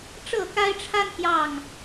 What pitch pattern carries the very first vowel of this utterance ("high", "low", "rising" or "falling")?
falling